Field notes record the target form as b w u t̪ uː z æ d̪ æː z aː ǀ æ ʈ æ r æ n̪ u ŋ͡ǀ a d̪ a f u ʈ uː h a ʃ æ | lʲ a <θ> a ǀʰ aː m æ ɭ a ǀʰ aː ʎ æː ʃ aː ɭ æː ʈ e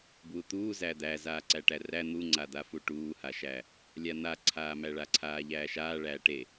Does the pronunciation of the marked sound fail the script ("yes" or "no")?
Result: yes